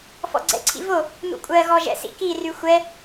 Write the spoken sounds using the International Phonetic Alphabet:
f ɔ̰ ɡ͡ǀ ɛ̰ ǀʰ ḭ v o | n̪ ṵ kʷʼ ɜ ɣ ɔ ʒ ɛ̰ s ḭ k i r y xʷ ɛ

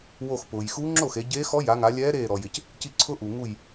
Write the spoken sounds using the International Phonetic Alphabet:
w o˧˩ x p ʊː˩ j x u˧˥ ŋ͡ǁ o˥˩ x e˩˧ ɟ eː˧˥ x ɔ˧˥ j a˩˧ ŋ a˩˧ lʲ ɛː˧˥ ɾ eː˧˩ ɾ ɔ˩ j ɪ˩ c | c i˧˩ ǀʰ ʊ˧˥ ʔ u˩ ŋ u˧˩ j

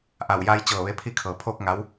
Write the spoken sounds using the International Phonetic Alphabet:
ʔ a˧˩ w j a˧ j t͡ɕ ɤː˧˩ ʋ e˧ pʰ i˧ kʰ ɤː˩ pʰ oː˥˨ k̚ ŋ a˧˥ w

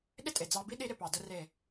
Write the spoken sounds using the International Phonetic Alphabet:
ɗ ɪ˦ tʼ e˨ d͡z ɑ˧ b i˦ ɗ i˧ ɾ ɪ˨ p ɑ˨ d ə˧ r e˨

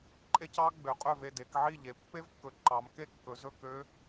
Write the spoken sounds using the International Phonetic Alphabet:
ǃʼ e˦˥ c ɑ˦˥ ɡ͡b ø˩˧ qʼ ø˥˩ v e˥˩ d e˩˧ k ʕ i˥˩ ʎ e˩˧ pː e˦˥ v kː ɵ˩˧ ǃ ɑ˩˧ m k e˥˩ kː ɵ˩˧ z ɵ˥˩ k ø˦˥

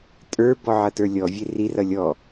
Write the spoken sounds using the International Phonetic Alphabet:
tʼ ə˞ b ɔ ʕ ʌ t ə˞ lʲ ɔ vʲ e r i r ʌ lʲ ɔ

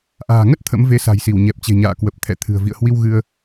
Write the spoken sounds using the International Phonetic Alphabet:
ʔ a̤ː˨˩ ŋ ə˦˥ t̚ t̪ʰ ə̰˧˥ m v e˨˦ s a̤˨˩ j s i˧˩ w ɲ ɛ˨˩ p̚ t͡ɕ e̤˨˩ ɲ a̰ː˧˨ k w ə˨˩ p̚ t̪ʰ ɛ̰˧˨ t̪ʰ ɨ̤˨˩ ə̯ v ḭ˧˨ ə̯ h w i˧ w ɣ ɨ˧ ə̯

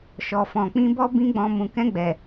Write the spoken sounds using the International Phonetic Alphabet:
ʃ ɔ˨ f ɔ̃˨ k͡p ĩ˧ b ɔ˦ b ĩ˦ ɡ͡b ɔ̃˧ m ũ˨ k ɛ̃˧ ɡ͡b ɛ˨

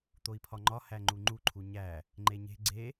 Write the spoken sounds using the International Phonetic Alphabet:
t̪ o i̯ pʰ ɒ ŋ͡ǃ ɒ h æ ŋ͡ǃ u ŋ͡ǃ u ǃʰ u ɲ æ | ŋ͡ǃ e ɲ e̤ ɡ͡ǀ e

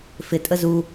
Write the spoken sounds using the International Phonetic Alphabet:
f ɪ tʼ ə z u

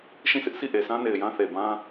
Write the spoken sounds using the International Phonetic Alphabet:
ʃ ĩ˦˨ sʰ ɪ˦ ʔ sʰ i˦˨ ʔ e˨ s ã˦ n e˨ ɪ̯ j ã˦ θ e˨ b ã˦

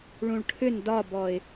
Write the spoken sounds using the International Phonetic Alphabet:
ɭ ũ ɭ ʈʰ ʏ n d ɒ b ɔ ɪ̯

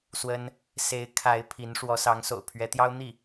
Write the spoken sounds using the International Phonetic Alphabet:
s w ə˥ n | s e˧˥ ɪ̯ kʰ a˧˥ ɪ̯ pʰ i˧˥ n ʂ w ɔ˧˥ s ɑ˧˥ ŋ s o̰˨˩ ʊ̯ pʰ ɥ ɛ˧˥ t̪ j ɑ˥ ʊ̯ n̪ i˥˩

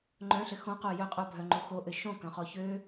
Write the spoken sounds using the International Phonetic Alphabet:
ŋ͡ǃ œ̃ ɬ ɘ x õ q o j œ qʼ o bʱ œ ŋ͡ǃ o x o ʔ ɘ ʃ õ k œ̃ χ ɔ ç ø

